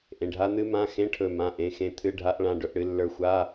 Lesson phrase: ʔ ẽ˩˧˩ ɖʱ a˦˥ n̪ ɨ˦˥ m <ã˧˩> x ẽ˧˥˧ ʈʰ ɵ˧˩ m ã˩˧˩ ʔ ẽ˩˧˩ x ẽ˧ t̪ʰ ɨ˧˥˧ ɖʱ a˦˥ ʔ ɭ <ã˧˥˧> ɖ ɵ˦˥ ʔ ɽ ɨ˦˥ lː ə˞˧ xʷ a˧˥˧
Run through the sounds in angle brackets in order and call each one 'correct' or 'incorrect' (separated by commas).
incorrect, correct